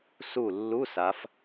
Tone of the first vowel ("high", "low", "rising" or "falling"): falling